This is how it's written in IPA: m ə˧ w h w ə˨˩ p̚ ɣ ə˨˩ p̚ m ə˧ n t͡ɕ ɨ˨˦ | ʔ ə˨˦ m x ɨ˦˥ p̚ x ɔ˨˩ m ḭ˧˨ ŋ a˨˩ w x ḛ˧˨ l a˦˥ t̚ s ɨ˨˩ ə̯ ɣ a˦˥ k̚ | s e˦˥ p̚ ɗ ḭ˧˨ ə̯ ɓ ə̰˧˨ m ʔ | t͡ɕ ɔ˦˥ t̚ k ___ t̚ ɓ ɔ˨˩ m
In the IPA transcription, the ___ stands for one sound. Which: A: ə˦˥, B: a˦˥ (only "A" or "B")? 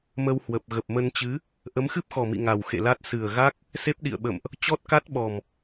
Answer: B